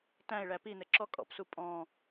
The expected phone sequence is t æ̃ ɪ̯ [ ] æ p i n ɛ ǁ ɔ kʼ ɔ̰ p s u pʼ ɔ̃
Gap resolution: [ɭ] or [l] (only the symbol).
ɭ